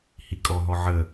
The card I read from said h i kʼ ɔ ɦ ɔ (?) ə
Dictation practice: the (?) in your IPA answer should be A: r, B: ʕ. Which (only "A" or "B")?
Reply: B